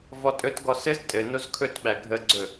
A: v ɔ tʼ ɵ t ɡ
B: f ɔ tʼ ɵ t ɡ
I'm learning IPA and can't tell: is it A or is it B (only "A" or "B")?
A